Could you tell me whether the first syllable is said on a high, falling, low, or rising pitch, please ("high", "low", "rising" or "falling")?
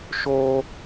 high